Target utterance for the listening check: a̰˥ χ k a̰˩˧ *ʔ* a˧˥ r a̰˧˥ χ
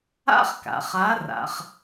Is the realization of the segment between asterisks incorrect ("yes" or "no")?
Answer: yes